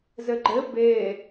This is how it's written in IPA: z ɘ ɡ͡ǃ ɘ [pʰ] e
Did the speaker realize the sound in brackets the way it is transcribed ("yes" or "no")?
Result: no